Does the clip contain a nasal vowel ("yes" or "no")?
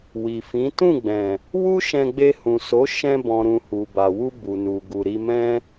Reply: yes